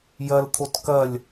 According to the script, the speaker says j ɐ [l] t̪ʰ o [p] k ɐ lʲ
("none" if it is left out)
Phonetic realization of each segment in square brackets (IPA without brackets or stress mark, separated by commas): l, t